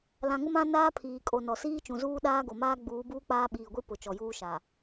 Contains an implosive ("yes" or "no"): yes